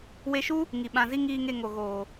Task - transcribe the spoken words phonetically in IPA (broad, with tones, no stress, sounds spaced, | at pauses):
w e˧ ʃ u˦ | ŋ i˨ ɓ ã˨ z i˧ ŋ iː˨ ŋ e˨ ŋ o˨ ɣ oː˨